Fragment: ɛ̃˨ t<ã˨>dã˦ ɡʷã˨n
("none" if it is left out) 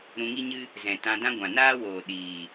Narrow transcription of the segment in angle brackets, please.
ã˧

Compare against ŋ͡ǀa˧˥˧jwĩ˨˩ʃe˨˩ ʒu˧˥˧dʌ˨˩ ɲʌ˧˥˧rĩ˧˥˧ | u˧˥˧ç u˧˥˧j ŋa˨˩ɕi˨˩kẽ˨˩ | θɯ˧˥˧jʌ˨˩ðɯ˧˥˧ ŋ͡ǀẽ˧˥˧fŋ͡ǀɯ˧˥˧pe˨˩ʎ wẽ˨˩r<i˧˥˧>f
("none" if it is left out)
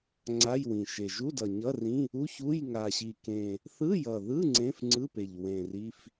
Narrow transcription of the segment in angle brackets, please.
i˧˥˧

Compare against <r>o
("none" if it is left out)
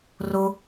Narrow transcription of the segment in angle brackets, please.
r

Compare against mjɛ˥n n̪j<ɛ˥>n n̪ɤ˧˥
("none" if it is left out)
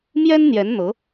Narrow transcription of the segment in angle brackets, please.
ɛ˧˥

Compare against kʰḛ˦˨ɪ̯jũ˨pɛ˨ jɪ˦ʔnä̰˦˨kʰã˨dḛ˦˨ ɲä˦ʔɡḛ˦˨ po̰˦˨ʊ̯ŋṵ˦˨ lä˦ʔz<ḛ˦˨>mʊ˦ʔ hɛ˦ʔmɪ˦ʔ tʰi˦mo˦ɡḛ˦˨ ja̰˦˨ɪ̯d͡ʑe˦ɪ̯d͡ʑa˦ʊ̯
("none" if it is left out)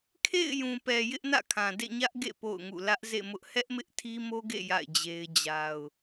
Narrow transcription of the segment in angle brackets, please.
ḛ˦˨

